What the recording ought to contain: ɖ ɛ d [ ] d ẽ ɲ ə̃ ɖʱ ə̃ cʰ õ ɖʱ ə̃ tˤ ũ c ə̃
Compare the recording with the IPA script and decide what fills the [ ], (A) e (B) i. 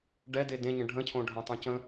A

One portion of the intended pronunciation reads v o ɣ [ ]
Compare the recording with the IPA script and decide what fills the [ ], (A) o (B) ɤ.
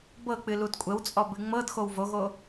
A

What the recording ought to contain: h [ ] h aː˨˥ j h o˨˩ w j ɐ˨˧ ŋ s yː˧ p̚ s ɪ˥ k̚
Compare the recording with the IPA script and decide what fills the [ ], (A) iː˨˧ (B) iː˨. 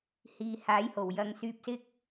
B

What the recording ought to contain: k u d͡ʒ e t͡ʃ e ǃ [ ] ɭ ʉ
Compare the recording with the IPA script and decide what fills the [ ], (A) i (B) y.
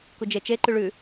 B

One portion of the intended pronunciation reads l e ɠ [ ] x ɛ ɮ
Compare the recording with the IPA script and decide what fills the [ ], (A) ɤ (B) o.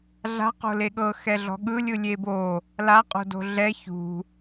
A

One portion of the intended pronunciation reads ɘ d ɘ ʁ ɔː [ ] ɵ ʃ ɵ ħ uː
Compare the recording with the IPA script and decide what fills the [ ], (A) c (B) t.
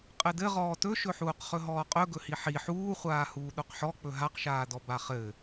B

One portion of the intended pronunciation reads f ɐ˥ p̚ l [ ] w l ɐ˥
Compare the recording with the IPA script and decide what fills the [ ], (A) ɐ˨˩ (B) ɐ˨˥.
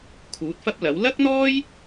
B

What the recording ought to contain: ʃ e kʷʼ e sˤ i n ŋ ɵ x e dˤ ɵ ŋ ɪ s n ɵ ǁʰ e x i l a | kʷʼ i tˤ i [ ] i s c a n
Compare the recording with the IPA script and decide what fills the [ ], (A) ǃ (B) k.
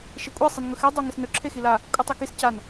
B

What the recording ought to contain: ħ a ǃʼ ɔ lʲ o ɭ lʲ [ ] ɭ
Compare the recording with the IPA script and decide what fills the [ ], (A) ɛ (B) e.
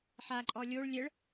A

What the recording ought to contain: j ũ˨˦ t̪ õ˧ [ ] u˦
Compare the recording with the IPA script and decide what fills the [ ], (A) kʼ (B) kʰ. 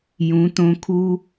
B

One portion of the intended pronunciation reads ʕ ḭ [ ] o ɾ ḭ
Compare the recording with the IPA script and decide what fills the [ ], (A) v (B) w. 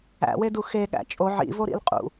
A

